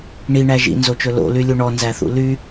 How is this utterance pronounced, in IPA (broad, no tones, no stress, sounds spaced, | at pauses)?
ɳ i ɳ æ ʒ ḭ n z o t͡ʃ ɵ l o̰ l y lʲ u ɳ ɔ n z æ θ ṵ l y